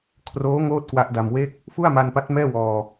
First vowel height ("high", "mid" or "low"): mid